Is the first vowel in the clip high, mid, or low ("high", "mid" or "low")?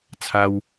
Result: low